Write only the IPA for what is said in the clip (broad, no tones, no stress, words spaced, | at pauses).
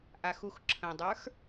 ʔaxuxǁʰə̃dˤə˞x